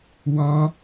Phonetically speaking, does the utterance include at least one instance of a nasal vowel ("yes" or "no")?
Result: yes